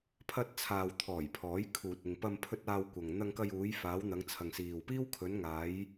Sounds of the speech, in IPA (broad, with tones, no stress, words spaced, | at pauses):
pʰɐ˧t̚t͡sʰaː˨wt̪ʰɔː˨˩j pʰɔː˨˥jkʰuː˨t̚ɪ˨ŋ pɐ˧mpʰɵ˧t̚ aː˧wkʷɐ˨ŋ n̪ɐ˧ŋkɐ˧juː˨˧jfaː˨˧w n̪ɐ˨˧ŋt͡sʰɐ˨ŋsiː˨wpiː˥w kʰɵ˨˧nŋaː˨˧j